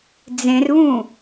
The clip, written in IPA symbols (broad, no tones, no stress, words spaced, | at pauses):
d͡zẽrβũ